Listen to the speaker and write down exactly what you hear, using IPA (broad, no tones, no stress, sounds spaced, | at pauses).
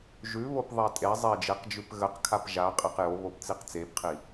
ʒ ʉ β o p ðˤ ɛ tʼ e zˤ e d͡ʒ e q d͡ʒ ʉ p ɣ ə q kʰ a p ʒ a qʼ e q j o β o p t͡s i q t͡s e p qʰ i